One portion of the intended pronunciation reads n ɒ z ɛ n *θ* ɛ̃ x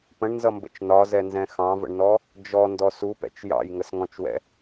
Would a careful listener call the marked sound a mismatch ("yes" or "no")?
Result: yes